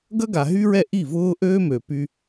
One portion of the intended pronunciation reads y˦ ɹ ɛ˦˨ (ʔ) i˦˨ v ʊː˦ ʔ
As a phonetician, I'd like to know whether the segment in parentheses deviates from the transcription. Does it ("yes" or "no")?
no